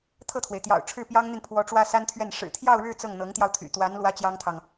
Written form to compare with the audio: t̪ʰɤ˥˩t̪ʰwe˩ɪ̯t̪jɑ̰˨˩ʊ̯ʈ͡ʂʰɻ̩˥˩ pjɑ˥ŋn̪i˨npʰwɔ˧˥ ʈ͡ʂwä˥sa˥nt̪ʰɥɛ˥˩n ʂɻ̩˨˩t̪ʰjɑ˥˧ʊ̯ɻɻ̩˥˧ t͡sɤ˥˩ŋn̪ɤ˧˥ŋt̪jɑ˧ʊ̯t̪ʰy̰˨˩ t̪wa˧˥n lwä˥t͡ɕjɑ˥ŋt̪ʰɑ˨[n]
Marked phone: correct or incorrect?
incorrect